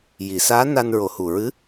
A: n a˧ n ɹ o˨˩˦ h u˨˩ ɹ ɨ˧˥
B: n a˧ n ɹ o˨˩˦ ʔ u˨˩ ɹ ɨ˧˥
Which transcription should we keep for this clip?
A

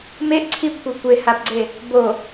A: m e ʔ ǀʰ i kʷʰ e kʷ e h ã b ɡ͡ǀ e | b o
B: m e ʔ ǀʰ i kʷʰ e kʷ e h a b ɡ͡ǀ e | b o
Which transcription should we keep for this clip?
B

